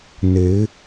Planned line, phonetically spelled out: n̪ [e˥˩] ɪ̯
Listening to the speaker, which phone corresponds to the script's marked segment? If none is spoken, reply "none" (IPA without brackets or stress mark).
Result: e˧˥